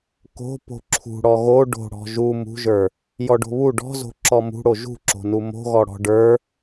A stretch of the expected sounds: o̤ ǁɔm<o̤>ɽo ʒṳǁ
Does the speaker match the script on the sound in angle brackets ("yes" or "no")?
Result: no